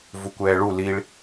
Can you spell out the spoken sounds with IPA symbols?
v u kʷ ɛː ɭ u l i ɭ

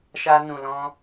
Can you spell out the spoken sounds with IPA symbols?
ʃ a˧ n ũ˨ l ɔ̃˧

